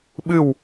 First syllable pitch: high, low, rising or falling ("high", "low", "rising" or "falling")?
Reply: falling